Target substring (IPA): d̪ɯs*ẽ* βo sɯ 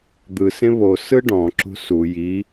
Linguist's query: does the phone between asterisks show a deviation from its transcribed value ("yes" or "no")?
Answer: no